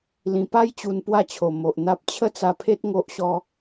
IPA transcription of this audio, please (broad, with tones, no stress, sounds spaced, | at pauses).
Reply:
l ĩ˨˩ p a˦ j t͡ɕ u˧ n p w a˥˧ t͡ɕʰ o˨˩ m o˨ ʔ n̪ a˦ p̚ t͡ɕʰ ə˥˧ t͡s a˧ pʰ e˦ t̚ ŋ o˦ ʔ ɕ ɔ˦